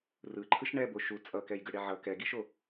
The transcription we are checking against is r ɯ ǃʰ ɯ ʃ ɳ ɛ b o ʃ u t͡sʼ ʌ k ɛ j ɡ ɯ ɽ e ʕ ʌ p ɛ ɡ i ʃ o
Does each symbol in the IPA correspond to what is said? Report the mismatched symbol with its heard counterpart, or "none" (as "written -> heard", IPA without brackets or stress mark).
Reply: p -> k